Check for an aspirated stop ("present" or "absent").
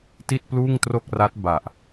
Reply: absent